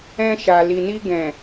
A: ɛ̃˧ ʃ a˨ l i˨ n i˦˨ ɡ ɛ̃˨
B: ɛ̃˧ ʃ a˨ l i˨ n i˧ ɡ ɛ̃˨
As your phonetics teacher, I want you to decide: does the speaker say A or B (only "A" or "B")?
B